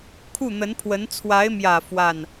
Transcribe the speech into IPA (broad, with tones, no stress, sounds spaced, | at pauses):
kʰ u˥˩ n̪ ə˧˥ n pʰ w ə˧˥ n t͡sʰ w a˧˥ ɪ̯ m j ä˨˩ f w a˥˩ n